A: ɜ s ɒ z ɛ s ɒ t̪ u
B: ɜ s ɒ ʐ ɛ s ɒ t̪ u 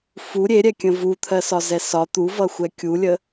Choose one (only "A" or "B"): A